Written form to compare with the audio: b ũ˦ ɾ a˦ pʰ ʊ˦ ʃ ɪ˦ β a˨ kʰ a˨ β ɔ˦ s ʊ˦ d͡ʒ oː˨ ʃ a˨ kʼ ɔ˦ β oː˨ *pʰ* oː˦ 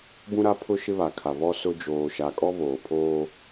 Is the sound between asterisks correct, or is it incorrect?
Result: correct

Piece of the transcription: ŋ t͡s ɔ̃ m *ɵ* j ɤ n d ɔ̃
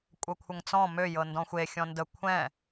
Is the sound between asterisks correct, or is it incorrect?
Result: incorrect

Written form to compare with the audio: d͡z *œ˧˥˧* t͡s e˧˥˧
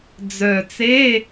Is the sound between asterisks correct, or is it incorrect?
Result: incorrect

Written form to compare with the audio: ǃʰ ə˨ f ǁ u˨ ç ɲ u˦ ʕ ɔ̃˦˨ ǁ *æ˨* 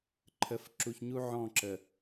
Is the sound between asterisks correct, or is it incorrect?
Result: incorrect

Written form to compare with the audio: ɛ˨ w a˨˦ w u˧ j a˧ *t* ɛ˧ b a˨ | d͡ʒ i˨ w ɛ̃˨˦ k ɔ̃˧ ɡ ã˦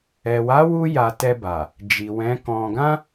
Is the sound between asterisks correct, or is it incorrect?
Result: correct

